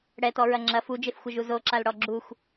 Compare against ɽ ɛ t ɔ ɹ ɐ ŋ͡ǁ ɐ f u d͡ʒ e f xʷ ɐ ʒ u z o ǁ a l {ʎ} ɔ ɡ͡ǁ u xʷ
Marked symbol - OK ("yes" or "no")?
no